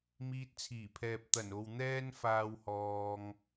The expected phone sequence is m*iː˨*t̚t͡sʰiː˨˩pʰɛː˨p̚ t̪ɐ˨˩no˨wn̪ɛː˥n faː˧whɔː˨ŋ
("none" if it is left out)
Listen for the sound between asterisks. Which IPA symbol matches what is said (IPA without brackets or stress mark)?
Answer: iː˧